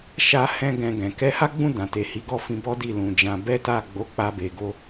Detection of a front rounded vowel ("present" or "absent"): absent